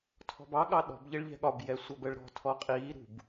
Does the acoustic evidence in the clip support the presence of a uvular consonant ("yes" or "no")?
yes